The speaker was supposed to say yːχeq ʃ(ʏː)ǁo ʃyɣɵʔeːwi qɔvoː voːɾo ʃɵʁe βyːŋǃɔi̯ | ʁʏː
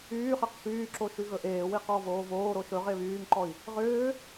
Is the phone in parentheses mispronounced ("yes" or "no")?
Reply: yes